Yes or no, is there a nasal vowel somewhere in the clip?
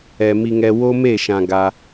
yes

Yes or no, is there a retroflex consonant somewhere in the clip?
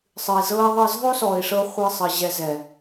yes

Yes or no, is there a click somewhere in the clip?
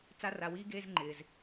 yes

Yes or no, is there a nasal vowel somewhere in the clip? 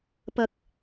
no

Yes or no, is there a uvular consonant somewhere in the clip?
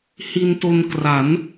no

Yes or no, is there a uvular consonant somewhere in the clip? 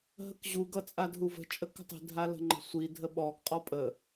yes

